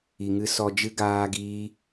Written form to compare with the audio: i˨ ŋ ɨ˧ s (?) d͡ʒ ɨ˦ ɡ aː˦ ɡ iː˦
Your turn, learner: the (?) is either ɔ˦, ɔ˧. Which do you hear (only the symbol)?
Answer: ɔ˧